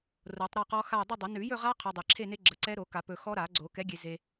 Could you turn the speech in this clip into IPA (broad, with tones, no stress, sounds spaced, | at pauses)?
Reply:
r o˨˩˦ tˤ ɾ ɔ˥˧ q ɔ˦˥ x a˥˧ ʊ̯ dˤ ə˥˧ dˤ ə˨˩˦ n ʉ˨˩˦ j ɵ˥˧ ʁ a˦˥ qʰ ɵ˨ dˤ ɛ˨ ǁʰ e˥˧ n e˦˥ ɡ͡ǁ ə˨˩˦ ǀ ɛ˦˥ ɾ o˨˩˦ k a˨˩˦ p ɵ˨ x ɔ˦˥ ɾ a˨˩˦ ɡ͡ǀ o˨˩˦ k ɛ˨˥ ɡʲ e˨ z e˨